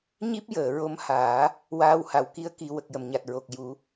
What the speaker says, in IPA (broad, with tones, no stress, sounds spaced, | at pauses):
ɲ i˦˥ p̚ j əː˨˩˨ ɹ o˧ m h aː˨˩˦ | w aː˧ w h a˨˩˨ w k i˧˥ ə̯ k i˨˩˦ w ə˨˩ k̚ j ə˨˩ m ɲ a˨˩ t̚ ɹ o˨˩ k̚ j u˨˩˦